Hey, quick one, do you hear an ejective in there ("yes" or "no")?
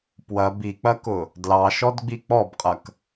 yes